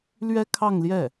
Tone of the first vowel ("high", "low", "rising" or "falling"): high